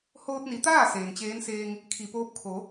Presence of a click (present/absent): absent